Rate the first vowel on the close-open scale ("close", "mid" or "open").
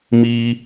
close